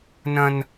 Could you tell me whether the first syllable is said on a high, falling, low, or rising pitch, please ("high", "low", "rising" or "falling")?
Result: high